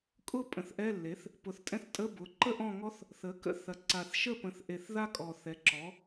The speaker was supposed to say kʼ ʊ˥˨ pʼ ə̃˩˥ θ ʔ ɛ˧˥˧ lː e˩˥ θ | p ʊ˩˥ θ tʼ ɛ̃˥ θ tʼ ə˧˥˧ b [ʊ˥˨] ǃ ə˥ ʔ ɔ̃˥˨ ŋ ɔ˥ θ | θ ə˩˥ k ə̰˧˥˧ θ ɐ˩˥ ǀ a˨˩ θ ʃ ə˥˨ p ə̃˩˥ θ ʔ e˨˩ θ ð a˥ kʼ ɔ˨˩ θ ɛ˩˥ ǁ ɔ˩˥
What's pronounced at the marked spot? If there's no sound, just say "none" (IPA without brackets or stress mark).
ʊ˩˥